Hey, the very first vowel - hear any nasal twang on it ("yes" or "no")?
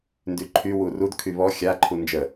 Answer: no